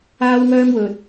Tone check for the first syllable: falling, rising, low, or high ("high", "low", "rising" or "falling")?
high